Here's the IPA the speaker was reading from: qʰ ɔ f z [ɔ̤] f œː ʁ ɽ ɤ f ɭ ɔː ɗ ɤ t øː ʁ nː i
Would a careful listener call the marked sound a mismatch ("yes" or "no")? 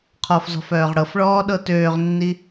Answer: no